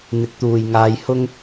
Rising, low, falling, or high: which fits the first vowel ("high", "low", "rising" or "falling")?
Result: rising